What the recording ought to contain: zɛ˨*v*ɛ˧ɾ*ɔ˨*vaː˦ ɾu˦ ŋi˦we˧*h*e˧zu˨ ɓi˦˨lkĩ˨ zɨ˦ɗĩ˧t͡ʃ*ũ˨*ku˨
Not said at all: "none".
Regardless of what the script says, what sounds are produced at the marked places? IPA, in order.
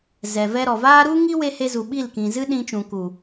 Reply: v, ɔ˨, h, ũ˨

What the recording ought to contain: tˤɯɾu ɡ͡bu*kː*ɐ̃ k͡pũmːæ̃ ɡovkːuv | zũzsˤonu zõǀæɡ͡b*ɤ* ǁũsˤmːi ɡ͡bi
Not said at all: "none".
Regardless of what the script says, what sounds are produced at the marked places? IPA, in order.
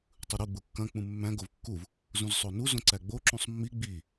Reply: kː, o

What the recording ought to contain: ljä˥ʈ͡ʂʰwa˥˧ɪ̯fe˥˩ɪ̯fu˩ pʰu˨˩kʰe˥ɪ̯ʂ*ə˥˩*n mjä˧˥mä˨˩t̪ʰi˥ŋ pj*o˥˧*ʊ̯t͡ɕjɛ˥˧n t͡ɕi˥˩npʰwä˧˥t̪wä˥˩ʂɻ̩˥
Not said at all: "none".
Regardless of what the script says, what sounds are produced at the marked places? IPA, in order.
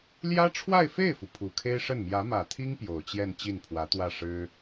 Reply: ə˥˩, o˨˩

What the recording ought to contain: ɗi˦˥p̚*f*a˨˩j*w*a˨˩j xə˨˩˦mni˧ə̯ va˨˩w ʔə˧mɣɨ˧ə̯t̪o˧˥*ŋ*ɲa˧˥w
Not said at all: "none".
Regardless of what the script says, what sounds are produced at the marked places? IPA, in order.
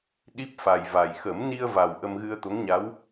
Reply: f, v, ŋ

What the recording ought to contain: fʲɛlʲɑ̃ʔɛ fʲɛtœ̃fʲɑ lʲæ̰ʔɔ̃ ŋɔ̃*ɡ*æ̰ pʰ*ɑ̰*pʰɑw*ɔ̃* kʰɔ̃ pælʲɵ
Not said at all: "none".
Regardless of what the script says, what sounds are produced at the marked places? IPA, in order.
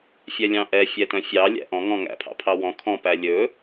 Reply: ŋ, ɑ̰, ɔ̃

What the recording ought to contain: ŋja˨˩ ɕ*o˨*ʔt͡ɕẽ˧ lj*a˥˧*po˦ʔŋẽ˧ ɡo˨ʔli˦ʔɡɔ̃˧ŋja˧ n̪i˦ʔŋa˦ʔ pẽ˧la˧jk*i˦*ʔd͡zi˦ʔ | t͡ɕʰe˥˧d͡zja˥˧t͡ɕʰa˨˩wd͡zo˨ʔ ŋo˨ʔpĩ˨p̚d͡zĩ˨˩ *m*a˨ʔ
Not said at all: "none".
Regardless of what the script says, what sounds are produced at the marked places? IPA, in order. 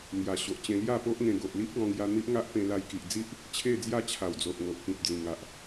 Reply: o˨, a˥˧, i˨, ŋ

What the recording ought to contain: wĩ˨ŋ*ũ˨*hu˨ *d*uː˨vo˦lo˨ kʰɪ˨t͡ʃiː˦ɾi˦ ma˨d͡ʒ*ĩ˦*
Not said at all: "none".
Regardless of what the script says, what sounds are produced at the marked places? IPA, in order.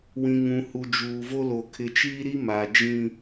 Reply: ũ˨, d͡ʒ, ĩ˦

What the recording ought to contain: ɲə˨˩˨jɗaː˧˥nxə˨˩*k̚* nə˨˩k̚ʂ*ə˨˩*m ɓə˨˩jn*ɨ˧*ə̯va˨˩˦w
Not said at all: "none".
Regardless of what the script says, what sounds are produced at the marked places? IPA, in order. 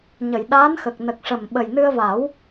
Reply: k̚, ə˨˩, ɨ˧

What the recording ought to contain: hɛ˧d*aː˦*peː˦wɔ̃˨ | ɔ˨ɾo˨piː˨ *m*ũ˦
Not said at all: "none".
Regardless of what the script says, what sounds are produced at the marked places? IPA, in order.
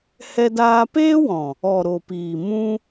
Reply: aː˧, m

